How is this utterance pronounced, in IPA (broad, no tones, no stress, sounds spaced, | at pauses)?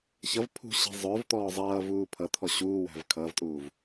ç ʌ v pʰ ṳ ɕ i̤ zˤ ʊː v t̪ ɔː zˤ ʌː v uː pʰ ʌ t̪ʰ ɔ ɕ uː w æ̤ v kʰ ʌː v tʼ uː v